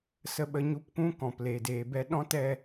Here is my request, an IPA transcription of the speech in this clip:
s ə˧ ɓ ə˧ ɲ u˧ p kʷ ũ˦ k ɔ̃˨ p l e˨ d eː˨ b ɛ˧ ɗ ɔ̃˦ t ɛ˧

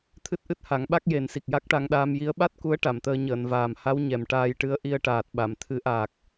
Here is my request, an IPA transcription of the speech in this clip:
t̪ʰ ɨ˦˥ t̚ ʔ ɨ˦˥ t̚ h a˨˩˦ ŋ ɓ a˦˥ k̚ j e˨˩˦ n s i˨˩ k̚ j a˦˥ k̚ ʈ a˧ ŋ ɗ aː˧ m j i˧˥ ə̯ ɓ a˦˥ t̚ k u˧˥ ə̯ ʈ a˨˩˨ m t̪ əː˧ ɲ əː˨˩˨ n v aː˨˩ m h a˧˥ w ɲ ɛ˨˩ m ʈ aː˧ j ʈ ɨ˧ ə̯ ʔ i˧ ə̯ ʈ aː˨˩ t̚ ɓ a˨˩˨ m t̪ʰ ɨ˨˩˦ ʔ aː˨˩ k̚

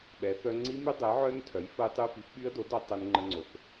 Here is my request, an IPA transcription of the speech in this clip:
ɓ ɛ˩˥ θ œ˦˥ ŋ͡ǀ i˦˥ m y˦˥ dˤ e˩˥ ʕ œ˦˥ n tʰ œ˩˥ j f ə˦˥ j tˤ y˦˥ f i˩˥ p ɓ y˦˥ ə̯ d o˩˥ d œ˩˥ tˤ ɛ˦˥ n ŋ͡ǃ ə˦˥ ŋ͡ǀ o˩˥ θ

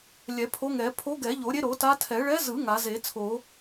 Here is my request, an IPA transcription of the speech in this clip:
lʲ ɛ˨˩˦ pʰ o˧˥ ŋ ɛ˨˩˦ pʰ o˧˥ ɡ ɛ˨˩˦ ʎ o˨˩˦ ɾʲ e˧˥ ɾ o˨˩˦ t a˧˥ tʰ ɛ˨˩˦ ɭ ɛ˧˥ z ɯ˨˩˦ ŋ a˨˩˦ z e˨˩˦ t͡sʰ o˨˩˦

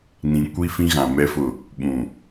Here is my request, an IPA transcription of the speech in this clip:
n ĩ˨ kʷ i˦ f ĩ˦ ɣ ã˨ m ɛ˦ f ʊ˦˨ | ɓ ũ˨

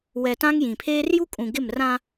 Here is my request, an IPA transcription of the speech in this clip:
w ɛ˨ t ã˦ ŋ j ĩ˨ pʰ eː˦ r j u˦ kʼ ũ˨ ɡ ɪ˦˨ m r ã˦

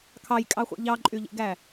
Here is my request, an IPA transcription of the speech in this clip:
kʰ ɑ j kʼ ɑ χʷ ḛ ʎ ɑ ǃʼ y ʎ ḛ ɡ æ

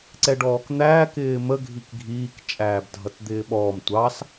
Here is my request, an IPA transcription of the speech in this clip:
ǀ ɛ ɖ ɔː k n̪ æː k ɪː m ə ɡʱ i k ɡʱ iː k t͡ʃʼ æː b dʱ ʌ t d̪ ɪː ɓ ɔː m tʷ ɑ s

